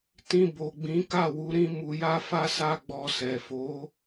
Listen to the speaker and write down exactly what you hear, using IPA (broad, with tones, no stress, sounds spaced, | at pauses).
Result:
t ĩ˧ b o˨ ɡ͡b ĩ˨˦ k a˦˨ w u˨˦ ɾ ĩ˦ m u˧ j a˦ f a˦ s a˦ ɡ͡b ɔ˧ s ɛ˨ f o˨˦